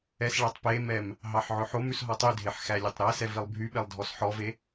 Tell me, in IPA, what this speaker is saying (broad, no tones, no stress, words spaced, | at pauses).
ɛsɭætˤ pemɛm | ɦɑħʕɵħomʉs ɦɔtˤydʱeħ xælʲetˤɾæsɛ vilˠbʱyɓelˠ dʱɔsħɔve